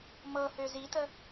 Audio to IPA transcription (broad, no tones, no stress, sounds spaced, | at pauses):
m ɤ h ø z i t ə